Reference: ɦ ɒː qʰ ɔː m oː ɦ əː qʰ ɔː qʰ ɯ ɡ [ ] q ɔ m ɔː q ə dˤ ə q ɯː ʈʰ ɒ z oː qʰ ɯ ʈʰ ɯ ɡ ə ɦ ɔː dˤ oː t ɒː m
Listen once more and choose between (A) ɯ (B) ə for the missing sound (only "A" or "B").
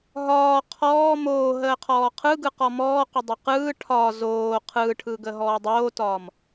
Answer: A